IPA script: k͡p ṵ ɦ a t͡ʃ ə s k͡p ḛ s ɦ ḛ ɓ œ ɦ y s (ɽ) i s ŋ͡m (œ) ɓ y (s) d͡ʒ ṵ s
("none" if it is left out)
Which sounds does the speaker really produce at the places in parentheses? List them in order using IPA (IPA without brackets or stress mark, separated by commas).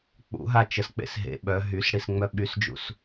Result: ɽ, œ, s